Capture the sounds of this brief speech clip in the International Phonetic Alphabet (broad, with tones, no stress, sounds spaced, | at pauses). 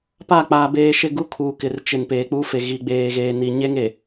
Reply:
p a˦˨ k͡p aː˨ b eː˨ ʃ ɪ˦˨ ɡ u˦ kʰ uː˨ k ɪ˨ r t͡ʃ ɪ˨ n p eː˨ k͡p uː˦ f e˨ ɣ i˨ ɡ͡b eː˨ ɣ eː˨ n i˨ ɲ e˦ ŋ e˨